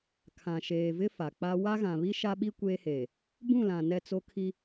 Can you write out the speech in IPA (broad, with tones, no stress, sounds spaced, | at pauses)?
kʰ ã˨ ʃ eː˨ v ɪ˦ f a˨ k͡p a˦ w a˦ ɣ ã˨ β i˦ ʃ a˦ ɓ i˦ kʷ eː˦ h eː˨ | b ũ˦˨ l ã˨ n ɛ˦˨ t͡s o˦ kʰ i˦